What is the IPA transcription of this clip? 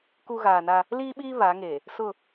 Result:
ku˦ ɣaː˨na˦ | liː˦ɓiː˦ βa˨˦ŋe˨ | sʊ˦˨

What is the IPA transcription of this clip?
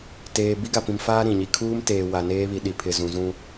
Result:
teː˨ bi˦ɡa˨pĩ˨mfaː˦ ɾĩ˨ɲi˦ kʰuː˦m teː˨wa˨ neː˦βi˨ ɗi˨ pʰɪ˨zũ˨zũ˦

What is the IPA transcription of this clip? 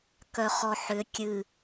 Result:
kœχɔħʏ kʲɨ

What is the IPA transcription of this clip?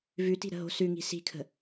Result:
vʉti̤ɾə̤ɦo̤ sʉŋi̤ si̤kʰə̤

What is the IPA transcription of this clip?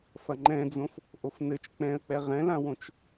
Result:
fɐŋ͡ǃɛ̃d͡zõf | ʔofnɘt͡ʃ k͡pɛ̃ə̯k͡pɛ ʁɛ̃lãwõt͡ʃ

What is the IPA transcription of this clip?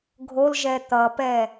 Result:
ɡʱolʒɛ t̪ʌpɛ

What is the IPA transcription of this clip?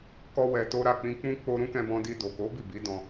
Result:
kɔ˦wɛ˧to˦ ɾa˦˨k͡pĩ˧k͡pũ˦ k͡po˧ ɾũ˦kɛ̃˧bɔ̃˧ di˧do˨ko˨˦ bi˦˨bi˨˦ dɔ̃˧

